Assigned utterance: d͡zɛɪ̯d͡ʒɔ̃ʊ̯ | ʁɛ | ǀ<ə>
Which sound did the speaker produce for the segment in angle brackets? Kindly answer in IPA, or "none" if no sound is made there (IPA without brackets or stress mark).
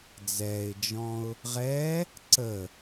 ə